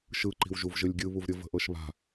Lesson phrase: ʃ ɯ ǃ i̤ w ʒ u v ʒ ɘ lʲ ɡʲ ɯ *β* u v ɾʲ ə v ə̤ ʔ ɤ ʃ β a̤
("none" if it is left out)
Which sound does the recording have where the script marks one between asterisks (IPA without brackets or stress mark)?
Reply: β